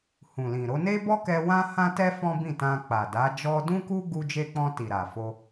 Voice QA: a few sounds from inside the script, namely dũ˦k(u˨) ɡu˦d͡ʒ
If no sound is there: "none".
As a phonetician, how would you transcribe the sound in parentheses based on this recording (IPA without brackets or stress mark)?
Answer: u˦